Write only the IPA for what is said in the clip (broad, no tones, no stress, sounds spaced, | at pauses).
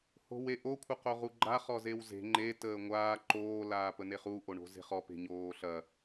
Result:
h o̤ w e ʔ o kʷʰ ə q o ʁ u ɡ͡ǃ a χ ɔ z e w z e̤ ŋ͡ǃ e t əː ŋʷ aː ǃ oː l aː p ə n e χ u ʔ o ɳ o̤ z e̤ χ ɔ p e̤ ɲ oː ɬ ɐ